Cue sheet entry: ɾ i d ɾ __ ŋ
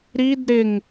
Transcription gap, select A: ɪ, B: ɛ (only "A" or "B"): A